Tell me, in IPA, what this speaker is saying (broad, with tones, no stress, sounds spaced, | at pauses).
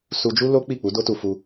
s u˧ d͡ʒ u˦ l o˦ k͡p i˦˨ k͡p u˨˦ d o˦ t u˧ f u˧